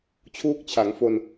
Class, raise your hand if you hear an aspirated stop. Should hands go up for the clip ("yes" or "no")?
yes